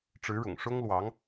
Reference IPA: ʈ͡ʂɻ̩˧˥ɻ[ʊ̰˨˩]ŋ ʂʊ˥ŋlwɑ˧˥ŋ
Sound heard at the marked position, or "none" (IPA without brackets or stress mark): ʊ̰˨˩